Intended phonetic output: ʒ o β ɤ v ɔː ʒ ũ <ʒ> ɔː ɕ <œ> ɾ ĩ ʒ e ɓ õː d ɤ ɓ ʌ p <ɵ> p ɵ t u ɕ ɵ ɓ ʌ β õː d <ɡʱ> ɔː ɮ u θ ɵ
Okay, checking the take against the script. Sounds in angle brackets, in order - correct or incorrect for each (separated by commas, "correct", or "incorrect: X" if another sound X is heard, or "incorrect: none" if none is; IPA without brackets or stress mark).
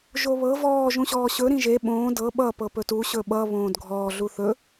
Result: incorrect: ɕ, incorrect: ɵ, incorrect: ɤ, correct